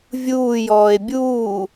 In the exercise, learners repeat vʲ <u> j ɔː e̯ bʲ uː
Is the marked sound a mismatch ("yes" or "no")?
yes